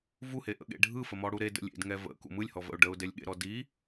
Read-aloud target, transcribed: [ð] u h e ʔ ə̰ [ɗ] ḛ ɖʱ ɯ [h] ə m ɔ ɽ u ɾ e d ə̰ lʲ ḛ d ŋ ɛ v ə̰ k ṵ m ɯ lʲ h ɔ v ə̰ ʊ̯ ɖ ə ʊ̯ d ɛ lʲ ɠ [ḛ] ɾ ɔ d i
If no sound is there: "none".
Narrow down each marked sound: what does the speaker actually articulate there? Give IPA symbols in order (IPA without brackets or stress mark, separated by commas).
v, ɠ, f, ḛ